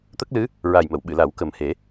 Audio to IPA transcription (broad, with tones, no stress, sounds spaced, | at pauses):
t̪ ə˦˥ k̚ l ɨ˧˥ | ɹ a˨˩ j m ə˨˩˨ w ɓ ɨ˨˩˨ l a˨˩˦ w k ə˨˩ m h e˨˩˦